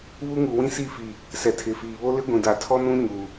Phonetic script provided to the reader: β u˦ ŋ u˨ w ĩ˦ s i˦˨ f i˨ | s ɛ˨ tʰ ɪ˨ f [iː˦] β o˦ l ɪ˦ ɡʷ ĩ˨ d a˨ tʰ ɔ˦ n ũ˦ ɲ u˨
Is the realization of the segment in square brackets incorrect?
yes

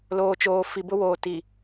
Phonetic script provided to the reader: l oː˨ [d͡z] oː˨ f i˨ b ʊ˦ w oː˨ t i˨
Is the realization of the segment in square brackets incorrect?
yes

